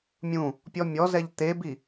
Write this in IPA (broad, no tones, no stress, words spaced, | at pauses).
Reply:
mʲũ | pʲɔmʲɔzɛʎ t̪ebi